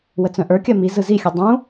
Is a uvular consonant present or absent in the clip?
absent